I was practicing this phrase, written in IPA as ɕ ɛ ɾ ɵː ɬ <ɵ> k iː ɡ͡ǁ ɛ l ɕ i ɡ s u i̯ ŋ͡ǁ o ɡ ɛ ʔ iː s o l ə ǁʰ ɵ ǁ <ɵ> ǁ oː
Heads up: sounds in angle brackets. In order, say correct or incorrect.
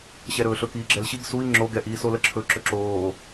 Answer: correct, correct

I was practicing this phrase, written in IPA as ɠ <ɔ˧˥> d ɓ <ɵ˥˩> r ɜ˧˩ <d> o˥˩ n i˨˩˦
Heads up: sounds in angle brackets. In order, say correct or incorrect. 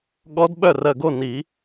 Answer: correct, incorrect, incorrect

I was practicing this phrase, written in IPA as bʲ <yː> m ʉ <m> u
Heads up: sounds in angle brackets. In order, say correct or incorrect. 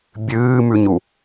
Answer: incorrect, incorrect

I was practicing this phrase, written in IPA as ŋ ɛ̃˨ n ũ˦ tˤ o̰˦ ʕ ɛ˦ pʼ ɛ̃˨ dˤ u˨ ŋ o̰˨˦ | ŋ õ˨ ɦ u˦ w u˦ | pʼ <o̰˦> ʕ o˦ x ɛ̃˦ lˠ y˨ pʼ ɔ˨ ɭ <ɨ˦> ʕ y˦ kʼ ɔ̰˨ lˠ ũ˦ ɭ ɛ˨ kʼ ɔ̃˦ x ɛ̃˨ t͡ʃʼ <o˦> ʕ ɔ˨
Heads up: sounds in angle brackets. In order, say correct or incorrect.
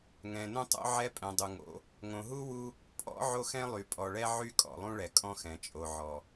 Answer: incorrect, incorrect, incorrect

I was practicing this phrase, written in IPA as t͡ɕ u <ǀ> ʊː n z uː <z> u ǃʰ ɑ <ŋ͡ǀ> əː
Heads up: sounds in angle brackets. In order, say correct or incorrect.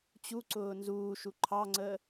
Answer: correct, incorrect, correct

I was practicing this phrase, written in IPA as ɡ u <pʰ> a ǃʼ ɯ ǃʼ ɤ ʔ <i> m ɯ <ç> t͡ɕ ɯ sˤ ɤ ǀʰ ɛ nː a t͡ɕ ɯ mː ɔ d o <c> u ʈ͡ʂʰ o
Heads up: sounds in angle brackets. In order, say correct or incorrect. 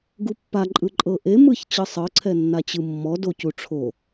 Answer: incorrect, incorrect, correct, correct

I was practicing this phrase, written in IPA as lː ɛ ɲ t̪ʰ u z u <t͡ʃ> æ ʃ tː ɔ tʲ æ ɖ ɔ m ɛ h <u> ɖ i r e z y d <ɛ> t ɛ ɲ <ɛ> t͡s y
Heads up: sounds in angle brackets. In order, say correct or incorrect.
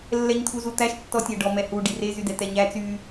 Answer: incorrect, correct, correct, incorrect

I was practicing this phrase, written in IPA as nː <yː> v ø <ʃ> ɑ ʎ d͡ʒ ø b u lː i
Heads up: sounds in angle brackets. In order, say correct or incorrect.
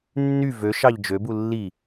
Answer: incorrect, correct

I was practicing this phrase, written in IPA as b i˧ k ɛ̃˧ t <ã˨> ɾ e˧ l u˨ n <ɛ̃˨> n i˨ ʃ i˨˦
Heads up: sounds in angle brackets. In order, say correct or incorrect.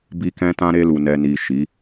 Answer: incorrect, incorrect

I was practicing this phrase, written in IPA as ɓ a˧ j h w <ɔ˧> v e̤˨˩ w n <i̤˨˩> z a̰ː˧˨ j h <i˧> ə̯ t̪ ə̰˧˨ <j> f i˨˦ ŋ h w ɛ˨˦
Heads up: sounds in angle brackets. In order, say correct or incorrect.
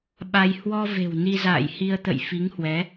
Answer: correct, incorrect, correct, correct

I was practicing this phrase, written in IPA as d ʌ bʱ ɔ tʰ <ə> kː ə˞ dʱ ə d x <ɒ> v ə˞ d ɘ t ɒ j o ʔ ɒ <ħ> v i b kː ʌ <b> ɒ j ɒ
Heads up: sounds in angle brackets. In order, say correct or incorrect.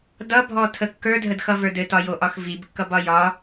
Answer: correct, incorrect, incorrect, correct

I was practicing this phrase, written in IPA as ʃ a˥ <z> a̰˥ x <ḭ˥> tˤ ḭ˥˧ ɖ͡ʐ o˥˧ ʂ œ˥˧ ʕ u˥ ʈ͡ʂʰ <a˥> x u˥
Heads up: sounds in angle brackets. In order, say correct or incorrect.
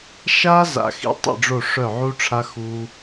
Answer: correct, correct, correct

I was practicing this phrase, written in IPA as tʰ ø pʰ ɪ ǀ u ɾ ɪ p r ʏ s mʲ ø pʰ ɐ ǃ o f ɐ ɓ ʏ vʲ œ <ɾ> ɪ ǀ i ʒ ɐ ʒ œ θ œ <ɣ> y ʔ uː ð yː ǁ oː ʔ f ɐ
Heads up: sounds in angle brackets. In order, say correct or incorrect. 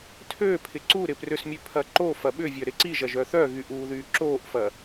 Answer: correct, correct

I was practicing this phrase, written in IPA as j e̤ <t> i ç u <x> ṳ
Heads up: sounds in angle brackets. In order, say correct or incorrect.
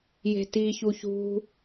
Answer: correct, incorrect

